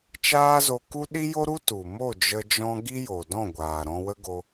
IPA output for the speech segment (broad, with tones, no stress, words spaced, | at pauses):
t͡ʃaː˦zo˧ ku˦ ɗi˦jo˦ɾu˦ tu˨ mo˦˨d͡ʒə˧d͡ʒɔ̃˧ ɡi˦jo˨dɔ̃˦˨ɡʷaː˨ ɾɔ̃˧wə˦ɡo˧